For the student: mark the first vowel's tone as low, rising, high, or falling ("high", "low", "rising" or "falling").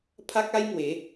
high